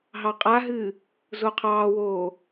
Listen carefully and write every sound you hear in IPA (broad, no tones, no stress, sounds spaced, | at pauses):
ɦ ɑ qʼ a ɦ ɨː | z o qʰ ɑː w oː